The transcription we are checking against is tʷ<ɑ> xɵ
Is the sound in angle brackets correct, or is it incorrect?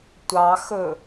correct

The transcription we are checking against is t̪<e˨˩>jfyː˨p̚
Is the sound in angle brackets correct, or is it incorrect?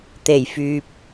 correct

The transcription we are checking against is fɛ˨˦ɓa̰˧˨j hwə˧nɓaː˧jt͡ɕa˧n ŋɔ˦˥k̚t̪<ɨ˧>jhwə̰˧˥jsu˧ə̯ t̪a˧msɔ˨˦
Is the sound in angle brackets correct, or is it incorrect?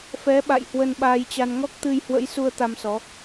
correct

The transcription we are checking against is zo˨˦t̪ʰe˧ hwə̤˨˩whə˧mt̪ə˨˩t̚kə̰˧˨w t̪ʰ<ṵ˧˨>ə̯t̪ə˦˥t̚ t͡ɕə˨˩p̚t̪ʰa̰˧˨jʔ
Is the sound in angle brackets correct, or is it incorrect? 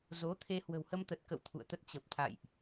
correct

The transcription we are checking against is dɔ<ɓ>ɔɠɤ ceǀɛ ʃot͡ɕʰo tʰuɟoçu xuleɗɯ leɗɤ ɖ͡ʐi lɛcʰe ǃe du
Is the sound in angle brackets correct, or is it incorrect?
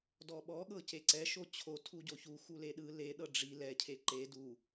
correct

